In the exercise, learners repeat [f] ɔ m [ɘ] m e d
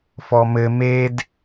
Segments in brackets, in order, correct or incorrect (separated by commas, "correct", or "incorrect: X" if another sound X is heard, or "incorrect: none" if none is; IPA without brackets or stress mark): correct, correct